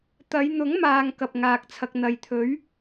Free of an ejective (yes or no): yes